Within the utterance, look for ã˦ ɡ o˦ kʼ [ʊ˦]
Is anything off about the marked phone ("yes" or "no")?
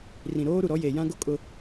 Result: no